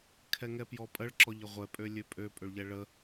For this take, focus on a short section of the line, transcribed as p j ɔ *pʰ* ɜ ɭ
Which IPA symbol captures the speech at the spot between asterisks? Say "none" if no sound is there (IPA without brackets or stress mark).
pʼ